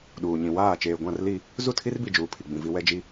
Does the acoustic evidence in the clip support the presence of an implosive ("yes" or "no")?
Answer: yes